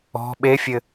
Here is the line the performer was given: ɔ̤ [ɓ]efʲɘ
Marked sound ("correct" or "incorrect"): correct